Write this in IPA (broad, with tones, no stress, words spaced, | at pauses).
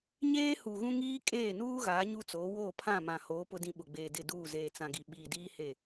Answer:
ɲeː˦hu˨ɣũ˦ ŋiː˦kʼeː˦˨nuː˦ɣaː˨˦ ɲu˦t͡so˨˦ woː˦˨pʰã˦˨mã˨hoː˨˦ pʊ˦dĩ˦ɓʊ˨ɡ͡beː˨ dɪ˦˨duː˦˨ zeː˨t͡sã˨ɡi˨ɓiː˨ diː˦he˦˨